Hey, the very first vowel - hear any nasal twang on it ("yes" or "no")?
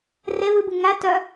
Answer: no